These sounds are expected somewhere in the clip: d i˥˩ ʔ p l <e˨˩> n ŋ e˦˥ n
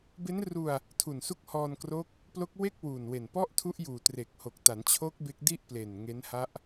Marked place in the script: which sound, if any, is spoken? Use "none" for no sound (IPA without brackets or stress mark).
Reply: e˨˩